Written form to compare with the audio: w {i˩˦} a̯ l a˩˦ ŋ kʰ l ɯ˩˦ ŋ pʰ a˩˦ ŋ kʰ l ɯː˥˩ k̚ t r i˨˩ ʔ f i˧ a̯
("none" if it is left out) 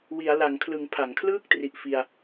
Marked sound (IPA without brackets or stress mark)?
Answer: i˩˦